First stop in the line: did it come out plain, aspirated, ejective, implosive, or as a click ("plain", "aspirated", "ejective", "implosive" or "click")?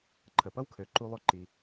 click